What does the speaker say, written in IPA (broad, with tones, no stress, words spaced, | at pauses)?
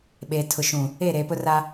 ɓeː˨tʰʊ˨ʃũ˨ | e˦˨ɾe˨ pʊ˦ra˦